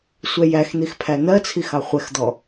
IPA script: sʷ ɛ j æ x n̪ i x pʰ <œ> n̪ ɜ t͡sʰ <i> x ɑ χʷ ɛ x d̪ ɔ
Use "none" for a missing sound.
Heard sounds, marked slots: æ, i

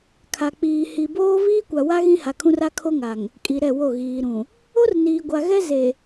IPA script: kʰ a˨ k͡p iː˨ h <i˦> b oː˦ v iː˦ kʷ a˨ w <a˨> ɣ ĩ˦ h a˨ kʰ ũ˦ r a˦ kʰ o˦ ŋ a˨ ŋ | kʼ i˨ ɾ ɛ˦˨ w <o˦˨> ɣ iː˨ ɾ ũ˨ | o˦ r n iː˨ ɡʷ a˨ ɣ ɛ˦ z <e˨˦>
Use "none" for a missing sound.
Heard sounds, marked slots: i˨, a˦, o˦˨, e˨

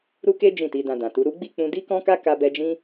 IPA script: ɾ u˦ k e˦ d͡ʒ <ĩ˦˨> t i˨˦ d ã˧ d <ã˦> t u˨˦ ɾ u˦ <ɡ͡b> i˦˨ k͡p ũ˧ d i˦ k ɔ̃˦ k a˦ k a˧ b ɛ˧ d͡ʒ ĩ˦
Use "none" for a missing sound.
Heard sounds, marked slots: ĩ˦˨, ã˨, ɡ͡b

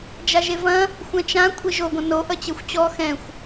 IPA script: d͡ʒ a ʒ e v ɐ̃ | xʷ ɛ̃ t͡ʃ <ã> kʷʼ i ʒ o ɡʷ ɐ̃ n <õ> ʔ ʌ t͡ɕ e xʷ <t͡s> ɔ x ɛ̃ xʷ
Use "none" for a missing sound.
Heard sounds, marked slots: ã, o, t͡ɕ

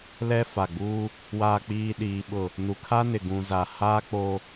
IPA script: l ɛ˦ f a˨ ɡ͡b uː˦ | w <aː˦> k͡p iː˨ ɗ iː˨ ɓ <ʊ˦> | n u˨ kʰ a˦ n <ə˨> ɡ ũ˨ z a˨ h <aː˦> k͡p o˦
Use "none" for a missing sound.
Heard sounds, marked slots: aː˨, ʊ˨, ɪ˨, aː˦

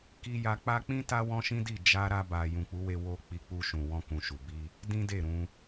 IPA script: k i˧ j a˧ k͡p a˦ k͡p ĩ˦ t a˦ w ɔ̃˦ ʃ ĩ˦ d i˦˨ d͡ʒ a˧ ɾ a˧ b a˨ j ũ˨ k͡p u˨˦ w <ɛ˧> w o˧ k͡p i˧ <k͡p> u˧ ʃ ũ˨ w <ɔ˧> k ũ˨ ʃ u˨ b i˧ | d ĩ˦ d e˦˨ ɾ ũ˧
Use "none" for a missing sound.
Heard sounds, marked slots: e˧, k͡p, ɔ̃˧

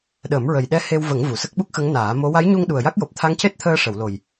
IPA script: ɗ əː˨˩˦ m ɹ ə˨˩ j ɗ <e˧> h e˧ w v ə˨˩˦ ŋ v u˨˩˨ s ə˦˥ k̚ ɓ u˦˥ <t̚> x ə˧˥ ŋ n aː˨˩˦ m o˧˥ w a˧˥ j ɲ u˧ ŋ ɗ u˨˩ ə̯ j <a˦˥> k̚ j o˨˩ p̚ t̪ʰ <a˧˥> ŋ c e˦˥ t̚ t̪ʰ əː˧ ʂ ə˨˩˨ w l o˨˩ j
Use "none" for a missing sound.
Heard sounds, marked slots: ɛ˧, k̚, a˦˥, a˧˥

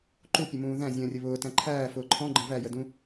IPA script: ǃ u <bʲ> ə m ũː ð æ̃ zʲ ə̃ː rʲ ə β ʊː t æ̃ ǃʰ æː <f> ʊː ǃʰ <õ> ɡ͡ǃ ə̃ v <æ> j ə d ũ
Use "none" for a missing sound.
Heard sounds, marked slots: pʲ, f, ɔ̃, æ

